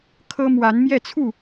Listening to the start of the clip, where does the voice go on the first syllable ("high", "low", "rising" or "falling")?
high